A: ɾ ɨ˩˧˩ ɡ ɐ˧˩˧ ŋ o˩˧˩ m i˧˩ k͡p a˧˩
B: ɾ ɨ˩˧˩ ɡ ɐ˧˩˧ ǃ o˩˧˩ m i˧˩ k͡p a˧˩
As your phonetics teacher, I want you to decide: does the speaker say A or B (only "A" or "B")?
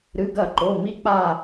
B